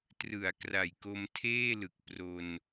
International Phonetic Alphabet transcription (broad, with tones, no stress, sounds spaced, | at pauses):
t r ɯ˩˦ a̯ k r a˨˩ j k o˧ m tʰ eː˥˩ l ɯ˨˩ k̚ p r o˧ n